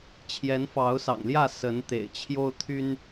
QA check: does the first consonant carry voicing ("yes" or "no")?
no